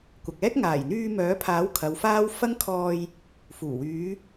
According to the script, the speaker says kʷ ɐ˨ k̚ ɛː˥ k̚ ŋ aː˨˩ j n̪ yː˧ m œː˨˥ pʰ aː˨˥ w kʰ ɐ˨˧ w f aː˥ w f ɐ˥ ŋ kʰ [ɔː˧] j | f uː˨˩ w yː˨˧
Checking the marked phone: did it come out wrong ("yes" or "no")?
no